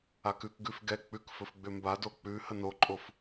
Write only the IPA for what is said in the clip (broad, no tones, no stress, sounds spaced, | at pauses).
a k ʉ k ɡ ʉ f ɡ ɛ k͡p ʉ k f ɵ f ɡ͡b ʏ m b a d o k͡p ʉ h ə n o ǃʼ o f